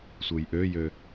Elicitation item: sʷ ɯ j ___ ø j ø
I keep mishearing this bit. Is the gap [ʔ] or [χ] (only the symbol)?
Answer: ʔ